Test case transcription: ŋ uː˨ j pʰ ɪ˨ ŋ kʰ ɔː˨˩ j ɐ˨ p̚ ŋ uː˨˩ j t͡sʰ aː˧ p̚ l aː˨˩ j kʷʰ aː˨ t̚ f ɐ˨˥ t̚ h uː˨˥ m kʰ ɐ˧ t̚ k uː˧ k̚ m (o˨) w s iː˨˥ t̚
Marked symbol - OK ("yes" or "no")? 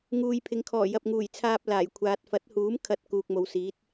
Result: yes